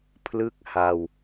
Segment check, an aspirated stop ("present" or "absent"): present